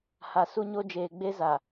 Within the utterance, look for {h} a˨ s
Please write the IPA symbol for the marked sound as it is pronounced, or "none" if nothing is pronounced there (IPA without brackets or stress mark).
h